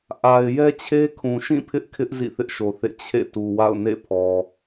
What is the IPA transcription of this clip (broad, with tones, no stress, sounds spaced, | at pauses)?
ʔ a˨ ɪ̯ j ɛ˦ t͡ɕʰ e˦ kʰ ũ˨ ʃ ĩ˦˨ pʰ ɪ˦ ʔ kʰ ɪ˦ ʔ z ḭ˦˨ θ ɪ˦ ʔ ʃ o˨ θ ḛ˦˨ t͡ɕʰ ḛ˦˨ t u˨ w a̰˦˨ ʊ̯ n ḛ˦˨ pʰ ɔ˨